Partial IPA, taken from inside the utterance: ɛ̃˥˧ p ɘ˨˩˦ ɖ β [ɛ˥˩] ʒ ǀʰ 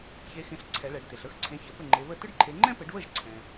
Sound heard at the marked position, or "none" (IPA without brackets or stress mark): ə˥˩